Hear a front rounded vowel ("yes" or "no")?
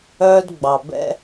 yes